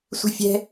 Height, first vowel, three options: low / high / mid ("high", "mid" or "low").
high